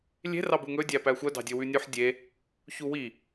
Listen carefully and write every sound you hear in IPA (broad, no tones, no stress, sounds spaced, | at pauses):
lʲ e̤ r ɑ b u ŋ ɵ dʲ æ p æ xʷ œ d ɑ̤ dʲ ɵ w ʉ nʲ ʉ ħ dʲ e | ç u w i